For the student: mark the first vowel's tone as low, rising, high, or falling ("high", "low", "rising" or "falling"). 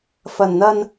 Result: low